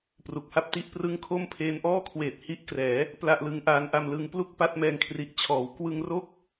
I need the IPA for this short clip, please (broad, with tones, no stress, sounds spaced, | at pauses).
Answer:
p r u˨˩ k̚ h a˥˩ p̚ t i˥˩ ʔ p r ɯ˥˩ ŋ kʰ o˥˩ m pʰ eː˧ n ʔ ɔː˥˩ kʰ w eː˨˩ t̚ h i˦˥ ʔ k r ɛː˩˦ | p l a˥˩ ʔ l ɯ˦˥ ŋ ʔ aː˦˥ n ʔ a˧ m l ɯ˧ ŋ p l u˥˩ k̚ p a˥˩ t̚ m ɛː˧ ŋ kʰ r i˨˩ ʔ t͡ɕʰ ɔː˩˦ w k w ɯ˧ ŋ r o˥˩ k̚